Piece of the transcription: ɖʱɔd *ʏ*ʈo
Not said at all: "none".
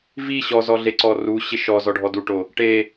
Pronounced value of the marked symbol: u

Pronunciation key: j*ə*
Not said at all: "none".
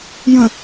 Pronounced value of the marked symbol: ə̃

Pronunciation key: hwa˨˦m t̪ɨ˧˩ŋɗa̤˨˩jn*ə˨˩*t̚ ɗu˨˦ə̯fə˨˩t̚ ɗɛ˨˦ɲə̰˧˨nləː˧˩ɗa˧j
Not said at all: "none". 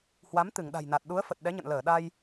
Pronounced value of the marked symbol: a˨˩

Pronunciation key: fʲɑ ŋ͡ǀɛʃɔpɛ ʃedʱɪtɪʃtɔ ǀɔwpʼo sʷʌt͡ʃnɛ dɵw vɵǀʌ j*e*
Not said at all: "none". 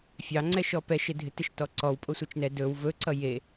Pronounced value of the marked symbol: e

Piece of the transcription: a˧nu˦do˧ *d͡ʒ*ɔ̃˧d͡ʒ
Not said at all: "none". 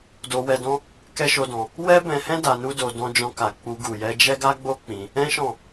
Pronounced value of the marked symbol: d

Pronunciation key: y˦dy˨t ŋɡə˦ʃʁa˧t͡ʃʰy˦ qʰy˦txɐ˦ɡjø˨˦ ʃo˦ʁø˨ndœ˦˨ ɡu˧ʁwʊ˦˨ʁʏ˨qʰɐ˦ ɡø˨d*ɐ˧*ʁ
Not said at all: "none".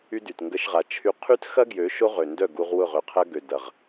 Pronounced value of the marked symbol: ɐ˨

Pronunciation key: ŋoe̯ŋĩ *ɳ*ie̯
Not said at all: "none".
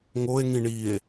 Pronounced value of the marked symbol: ɳ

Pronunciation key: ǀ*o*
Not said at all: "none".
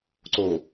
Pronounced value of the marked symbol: o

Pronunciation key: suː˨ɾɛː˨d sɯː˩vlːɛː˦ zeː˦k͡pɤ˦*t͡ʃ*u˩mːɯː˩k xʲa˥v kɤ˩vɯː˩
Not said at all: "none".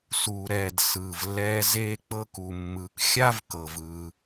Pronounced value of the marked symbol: k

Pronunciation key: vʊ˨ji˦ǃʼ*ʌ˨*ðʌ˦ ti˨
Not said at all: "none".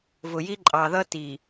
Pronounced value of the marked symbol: ɑ˨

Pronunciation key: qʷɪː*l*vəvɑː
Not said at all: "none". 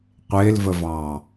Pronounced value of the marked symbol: l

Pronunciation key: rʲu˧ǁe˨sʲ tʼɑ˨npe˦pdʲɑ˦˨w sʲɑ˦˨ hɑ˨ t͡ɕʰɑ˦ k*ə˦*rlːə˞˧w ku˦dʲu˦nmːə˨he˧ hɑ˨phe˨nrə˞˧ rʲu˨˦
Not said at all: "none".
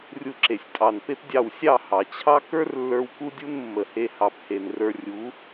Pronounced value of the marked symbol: ə˞˦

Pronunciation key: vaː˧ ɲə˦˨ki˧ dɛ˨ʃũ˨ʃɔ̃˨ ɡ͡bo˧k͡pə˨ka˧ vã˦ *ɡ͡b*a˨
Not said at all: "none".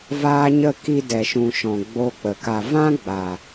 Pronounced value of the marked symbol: ɡ͡b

